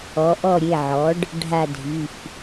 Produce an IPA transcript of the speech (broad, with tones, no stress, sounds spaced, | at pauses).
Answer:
ɔ˩˧ ʔ ɔ˦˨ ɾʲ e˩˧˩ ʕ ɔ˩˥ ɖ | ɖʱ a˦˨ dʱ i˩˧˩ f